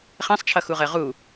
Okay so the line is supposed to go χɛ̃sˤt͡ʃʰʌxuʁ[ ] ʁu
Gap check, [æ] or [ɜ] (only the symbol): ɜ